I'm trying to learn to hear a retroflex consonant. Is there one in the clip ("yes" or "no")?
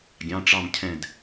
yes